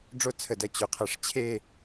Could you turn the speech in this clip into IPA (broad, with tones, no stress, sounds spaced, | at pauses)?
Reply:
ɖ͡ʐ o˥ t͡sʰ ə˧˩ d ɐ˧ t͡ɕ o˩˧ qʰ ɐ˧˩ ʂ t͡ɕʰ e˥˧